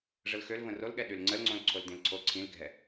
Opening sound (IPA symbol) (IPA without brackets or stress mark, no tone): ʐ